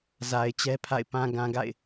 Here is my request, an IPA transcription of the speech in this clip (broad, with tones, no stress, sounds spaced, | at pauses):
z a˨ ɪ̯ t͡ɕ ɛ˦ pʰ a̰˦˨ ɪ̯ p ã˨ ɡ ã˨ ɡ a̰˦˨ ɪ̯